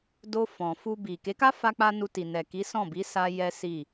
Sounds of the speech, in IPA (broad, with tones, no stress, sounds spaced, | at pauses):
d o˧ f ɔ̃˨ f u˧ b i˨ k e˨˦ k a˦ f a˧ k͡p a˧ n u˧ t i˨ n ɛ˨ k i˨˦ s ɔ̃˦˨ b i˨˦ s a˧ j ɛ˦ s i˦˨